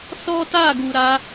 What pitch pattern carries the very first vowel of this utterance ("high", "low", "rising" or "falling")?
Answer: high